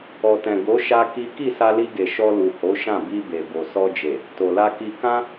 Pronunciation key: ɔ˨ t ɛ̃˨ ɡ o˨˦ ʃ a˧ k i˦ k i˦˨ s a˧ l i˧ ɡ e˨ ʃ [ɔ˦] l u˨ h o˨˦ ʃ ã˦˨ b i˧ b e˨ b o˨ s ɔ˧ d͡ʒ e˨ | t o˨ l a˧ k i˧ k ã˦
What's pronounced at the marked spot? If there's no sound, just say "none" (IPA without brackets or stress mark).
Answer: ɔ˧